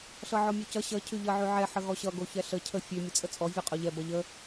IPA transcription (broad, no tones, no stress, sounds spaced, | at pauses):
ɬ ʌ ʕ ɔ mʲ o c ʌ ɕ ʌ cʰ ʉ ʎ ʌ ʕ ʉ ʕ ɛ ħ ə ɣ ɔ ɕ ʌ ɡ o ç ɛ ɬ ə cʰ ə fʲ ʉ mʲ ə t͡sʼ ə t͡sʼ ɔ vʲ ɔ qʼ o ʎ ɛ b ʌ ʎ ə